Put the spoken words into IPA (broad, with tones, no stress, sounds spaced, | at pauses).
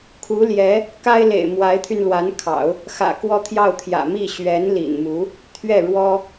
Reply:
kʰ u˧˥ l j ɛ˧˥ | k a˥ ɪ̯ l ḛ˨˩ ɪ̯ m w a˧˥ ɪ̯ t̪ʰ y˧ n l w a˧˥ n kʰ ɑ̰˨˩˦ ʊ̯ | x ä̰˨˩ k w ɔ˥˧ t̪ʰ j ɑ˥˩ ʊ̯ t̪ʰ j ä̰˨˩ m i˥˩ ɕ ɥ ɛ˧˥ n l ḭ˨˩ n m u˧˥ | t̪ʰ ɥ ɛ˥˩ ɻ w ɔ˥